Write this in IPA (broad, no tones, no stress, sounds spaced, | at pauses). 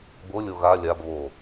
b o lʲ o ɣ a lʲ a b β o